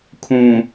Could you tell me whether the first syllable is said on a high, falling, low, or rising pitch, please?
low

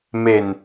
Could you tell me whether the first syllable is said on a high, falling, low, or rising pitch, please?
low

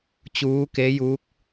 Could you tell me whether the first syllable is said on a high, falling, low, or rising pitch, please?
rising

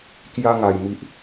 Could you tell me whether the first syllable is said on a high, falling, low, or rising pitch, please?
high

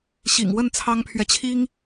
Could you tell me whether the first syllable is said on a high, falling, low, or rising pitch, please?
low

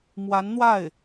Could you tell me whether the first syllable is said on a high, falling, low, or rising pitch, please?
rising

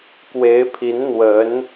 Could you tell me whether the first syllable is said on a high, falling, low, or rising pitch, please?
rising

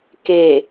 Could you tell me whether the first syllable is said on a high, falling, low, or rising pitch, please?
low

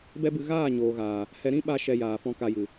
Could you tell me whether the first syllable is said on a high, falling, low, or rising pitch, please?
high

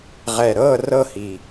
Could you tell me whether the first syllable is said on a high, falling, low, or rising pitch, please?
low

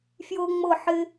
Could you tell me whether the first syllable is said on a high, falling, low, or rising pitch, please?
high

